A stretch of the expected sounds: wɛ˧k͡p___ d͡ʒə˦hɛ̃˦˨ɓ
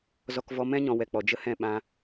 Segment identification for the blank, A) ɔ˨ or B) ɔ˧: A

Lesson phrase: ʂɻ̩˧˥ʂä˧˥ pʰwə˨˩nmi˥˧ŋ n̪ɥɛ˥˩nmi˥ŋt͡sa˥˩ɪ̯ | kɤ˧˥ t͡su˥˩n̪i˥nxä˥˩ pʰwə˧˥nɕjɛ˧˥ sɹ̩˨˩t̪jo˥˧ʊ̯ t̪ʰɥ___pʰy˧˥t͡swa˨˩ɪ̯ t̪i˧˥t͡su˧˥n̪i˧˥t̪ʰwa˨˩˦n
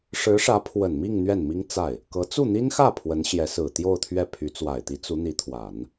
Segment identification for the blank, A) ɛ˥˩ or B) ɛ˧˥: A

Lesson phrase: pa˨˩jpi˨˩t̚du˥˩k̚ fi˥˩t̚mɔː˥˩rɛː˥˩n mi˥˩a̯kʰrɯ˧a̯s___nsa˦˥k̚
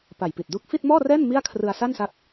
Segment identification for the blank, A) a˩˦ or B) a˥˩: B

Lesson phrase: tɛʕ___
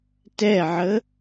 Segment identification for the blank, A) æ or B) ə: B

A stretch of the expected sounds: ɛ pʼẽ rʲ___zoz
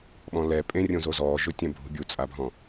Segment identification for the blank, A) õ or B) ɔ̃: A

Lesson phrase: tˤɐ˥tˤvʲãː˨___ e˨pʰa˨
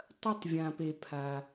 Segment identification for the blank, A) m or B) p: B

